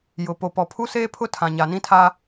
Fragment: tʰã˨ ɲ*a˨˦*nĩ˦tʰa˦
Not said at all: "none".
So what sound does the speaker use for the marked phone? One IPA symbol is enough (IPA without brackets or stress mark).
a˨